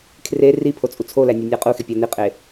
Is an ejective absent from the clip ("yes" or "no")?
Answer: no